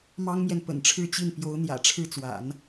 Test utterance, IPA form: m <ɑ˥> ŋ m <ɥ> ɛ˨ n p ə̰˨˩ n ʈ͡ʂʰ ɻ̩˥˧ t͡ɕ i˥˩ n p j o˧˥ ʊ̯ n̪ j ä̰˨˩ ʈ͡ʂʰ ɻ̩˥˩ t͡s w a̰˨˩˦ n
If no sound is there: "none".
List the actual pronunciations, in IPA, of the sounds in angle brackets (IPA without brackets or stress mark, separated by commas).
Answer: ɑ˥, j